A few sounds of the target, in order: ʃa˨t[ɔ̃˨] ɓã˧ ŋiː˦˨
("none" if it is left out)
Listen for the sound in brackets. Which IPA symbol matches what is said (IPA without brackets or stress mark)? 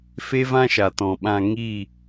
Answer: ɔ̃˨